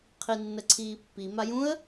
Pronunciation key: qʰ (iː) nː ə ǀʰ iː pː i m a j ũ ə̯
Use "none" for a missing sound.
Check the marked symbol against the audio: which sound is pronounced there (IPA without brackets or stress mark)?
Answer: i